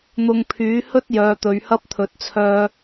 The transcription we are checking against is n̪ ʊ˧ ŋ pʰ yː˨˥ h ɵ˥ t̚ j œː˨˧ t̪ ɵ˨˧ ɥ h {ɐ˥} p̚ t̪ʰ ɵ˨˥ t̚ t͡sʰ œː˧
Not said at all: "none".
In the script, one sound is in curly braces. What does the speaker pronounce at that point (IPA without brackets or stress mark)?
ɐ˥